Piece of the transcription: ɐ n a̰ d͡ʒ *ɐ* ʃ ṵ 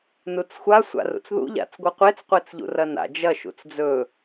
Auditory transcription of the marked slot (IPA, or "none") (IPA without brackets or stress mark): ɐ